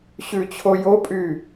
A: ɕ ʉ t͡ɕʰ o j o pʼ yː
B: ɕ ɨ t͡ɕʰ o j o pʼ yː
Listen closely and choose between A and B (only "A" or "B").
A